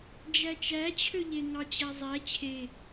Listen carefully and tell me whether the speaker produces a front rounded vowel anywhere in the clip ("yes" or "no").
yes